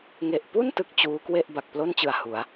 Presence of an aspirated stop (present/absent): absent